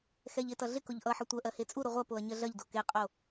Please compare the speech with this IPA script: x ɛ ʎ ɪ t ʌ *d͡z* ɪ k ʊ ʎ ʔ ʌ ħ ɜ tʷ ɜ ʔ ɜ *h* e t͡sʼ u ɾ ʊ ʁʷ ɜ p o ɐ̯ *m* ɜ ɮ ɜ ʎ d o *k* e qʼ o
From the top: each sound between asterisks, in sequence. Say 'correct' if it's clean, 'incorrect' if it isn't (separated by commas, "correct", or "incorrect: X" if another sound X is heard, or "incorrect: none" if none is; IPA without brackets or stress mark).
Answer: incorrect: ɮ, correct, incorrect: ɲ, correct